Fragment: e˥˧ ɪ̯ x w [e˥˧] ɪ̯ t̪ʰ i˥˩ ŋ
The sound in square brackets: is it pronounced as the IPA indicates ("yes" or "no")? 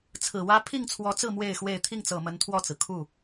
yes